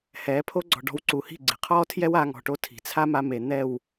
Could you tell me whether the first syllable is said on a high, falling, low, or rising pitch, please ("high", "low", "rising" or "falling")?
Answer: rising